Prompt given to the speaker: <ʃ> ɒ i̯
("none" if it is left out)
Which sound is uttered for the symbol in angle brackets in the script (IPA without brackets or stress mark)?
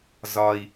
z